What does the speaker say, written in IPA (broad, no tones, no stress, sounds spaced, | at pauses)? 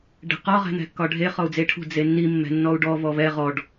ɖ ɛ̤ q ɒ ʁ ɛ̤ n̪ ɛ̤ kː ɒ ɖʱ e χ ɔ u̯ d͡z e ʈʰ ṳ d͡z e nː i mː ɛ̤ nː ɔ u̯ ɖ ɔ v ɔ v ɛ ʁ ɔ ɖ